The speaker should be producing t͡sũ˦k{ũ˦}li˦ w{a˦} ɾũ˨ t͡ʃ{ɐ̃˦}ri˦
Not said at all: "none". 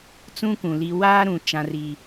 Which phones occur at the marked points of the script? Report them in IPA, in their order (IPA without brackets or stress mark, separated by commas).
ũ˨, aː˦, ã˦